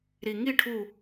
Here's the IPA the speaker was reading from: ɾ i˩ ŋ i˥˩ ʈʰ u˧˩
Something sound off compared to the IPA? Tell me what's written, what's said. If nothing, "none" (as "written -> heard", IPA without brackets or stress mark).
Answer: none